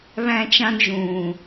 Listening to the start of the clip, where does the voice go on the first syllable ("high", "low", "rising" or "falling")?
high